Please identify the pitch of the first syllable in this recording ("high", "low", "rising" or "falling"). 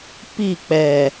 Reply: falling